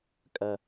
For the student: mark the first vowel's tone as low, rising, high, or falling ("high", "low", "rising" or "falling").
low